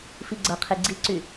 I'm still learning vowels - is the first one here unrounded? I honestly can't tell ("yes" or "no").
yes